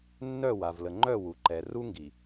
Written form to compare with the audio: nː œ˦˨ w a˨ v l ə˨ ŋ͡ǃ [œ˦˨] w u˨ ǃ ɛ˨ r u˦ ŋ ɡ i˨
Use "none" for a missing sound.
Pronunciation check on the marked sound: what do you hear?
œ˦˨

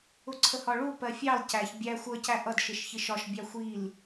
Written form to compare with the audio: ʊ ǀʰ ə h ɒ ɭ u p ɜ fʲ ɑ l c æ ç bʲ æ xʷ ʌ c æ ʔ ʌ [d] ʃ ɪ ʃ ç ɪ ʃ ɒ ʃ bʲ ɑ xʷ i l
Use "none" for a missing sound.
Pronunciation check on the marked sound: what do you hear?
d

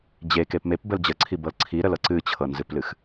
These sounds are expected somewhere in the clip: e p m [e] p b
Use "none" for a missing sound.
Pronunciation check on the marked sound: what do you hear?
e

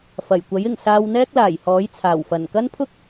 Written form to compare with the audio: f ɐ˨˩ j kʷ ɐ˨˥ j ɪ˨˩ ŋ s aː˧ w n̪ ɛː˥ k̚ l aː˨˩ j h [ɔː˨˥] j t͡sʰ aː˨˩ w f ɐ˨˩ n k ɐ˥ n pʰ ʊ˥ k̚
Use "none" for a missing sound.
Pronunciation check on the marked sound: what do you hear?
ɔː˨˥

